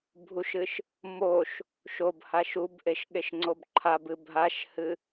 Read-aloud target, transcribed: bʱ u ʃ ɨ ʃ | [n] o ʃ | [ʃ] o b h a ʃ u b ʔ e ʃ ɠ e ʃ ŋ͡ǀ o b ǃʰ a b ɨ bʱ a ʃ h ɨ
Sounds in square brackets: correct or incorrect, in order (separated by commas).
incorrect, correct